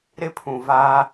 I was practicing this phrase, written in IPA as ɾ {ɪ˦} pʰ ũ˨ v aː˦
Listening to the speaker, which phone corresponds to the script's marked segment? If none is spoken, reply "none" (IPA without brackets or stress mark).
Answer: ɪ˦